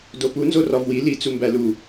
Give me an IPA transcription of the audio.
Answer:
d o p u n z o r ɒ v w i l i t͡s u m b æ l u

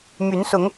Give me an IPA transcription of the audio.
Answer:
m y˨˦ n s ʊ˨˦ ŋ

